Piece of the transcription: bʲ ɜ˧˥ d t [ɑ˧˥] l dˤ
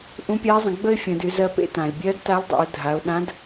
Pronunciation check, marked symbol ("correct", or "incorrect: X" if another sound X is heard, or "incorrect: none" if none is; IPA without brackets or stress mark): incorrect: a˧˥